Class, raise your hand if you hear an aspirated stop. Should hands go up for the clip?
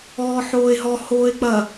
no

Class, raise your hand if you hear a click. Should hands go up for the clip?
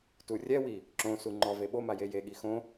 yes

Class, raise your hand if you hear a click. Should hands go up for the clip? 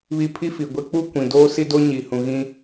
no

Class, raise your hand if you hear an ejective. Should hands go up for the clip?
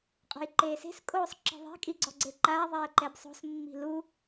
yes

